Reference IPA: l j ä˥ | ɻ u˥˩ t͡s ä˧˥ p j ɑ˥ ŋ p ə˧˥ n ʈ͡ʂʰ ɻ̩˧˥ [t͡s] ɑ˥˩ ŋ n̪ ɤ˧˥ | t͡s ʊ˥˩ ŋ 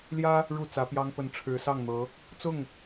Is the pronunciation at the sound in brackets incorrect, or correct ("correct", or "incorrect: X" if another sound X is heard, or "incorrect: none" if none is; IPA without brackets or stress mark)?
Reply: incorrect: s